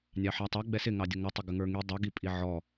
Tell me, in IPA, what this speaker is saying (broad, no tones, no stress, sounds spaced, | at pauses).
nʲ ɑ ħ æ tˤ ʌ ɡ͡b ɛ s ɪ ŋ ɑ dʲ ʊ ŋ ʊ tˤ ʊ ɡ ə ŋ ə˞ ŋ i dˤ ʌ ɡ i pʼ i ʕ ɔ